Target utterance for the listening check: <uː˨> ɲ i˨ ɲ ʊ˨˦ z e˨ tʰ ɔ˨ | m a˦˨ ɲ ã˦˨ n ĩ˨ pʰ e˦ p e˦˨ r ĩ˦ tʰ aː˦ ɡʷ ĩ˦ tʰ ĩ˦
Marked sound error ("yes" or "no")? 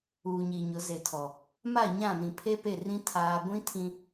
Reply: no